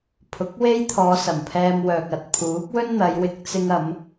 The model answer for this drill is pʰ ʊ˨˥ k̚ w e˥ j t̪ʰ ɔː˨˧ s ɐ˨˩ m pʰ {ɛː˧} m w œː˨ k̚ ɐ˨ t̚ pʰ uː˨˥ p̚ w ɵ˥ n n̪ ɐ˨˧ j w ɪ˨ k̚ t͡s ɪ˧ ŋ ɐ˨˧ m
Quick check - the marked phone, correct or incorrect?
correct